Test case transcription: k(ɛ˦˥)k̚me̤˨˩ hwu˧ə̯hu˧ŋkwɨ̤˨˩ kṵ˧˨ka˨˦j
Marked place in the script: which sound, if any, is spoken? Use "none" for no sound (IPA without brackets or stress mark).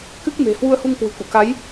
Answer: ɨ˦˥